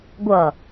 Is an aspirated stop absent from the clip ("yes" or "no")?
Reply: yes